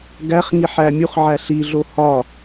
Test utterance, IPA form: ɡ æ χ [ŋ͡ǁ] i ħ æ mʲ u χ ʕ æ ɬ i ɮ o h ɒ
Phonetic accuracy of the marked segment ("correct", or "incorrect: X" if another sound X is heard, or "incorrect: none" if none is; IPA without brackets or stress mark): incorrect: ŋ